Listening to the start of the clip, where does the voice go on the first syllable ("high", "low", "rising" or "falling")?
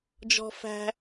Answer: high